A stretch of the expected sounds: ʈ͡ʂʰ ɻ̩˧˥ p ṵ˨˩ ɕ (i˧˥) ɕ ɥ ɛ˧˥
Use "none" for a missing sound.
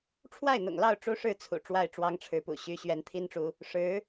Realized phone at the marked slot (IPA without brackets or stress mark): y˧˥